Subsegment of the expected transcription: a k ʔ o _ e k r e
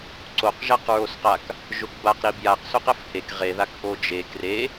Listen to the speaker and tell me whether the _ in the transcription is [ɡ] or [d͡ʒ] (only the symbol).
d͡ʒ